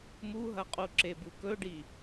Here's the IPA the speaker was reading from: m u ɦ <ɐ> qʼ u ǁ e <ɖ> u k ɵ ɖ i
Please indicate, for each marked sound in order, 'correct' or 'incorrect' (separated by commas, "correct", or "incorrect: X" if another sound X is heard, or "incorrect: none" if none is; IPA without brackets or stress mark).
correct, incorrect: b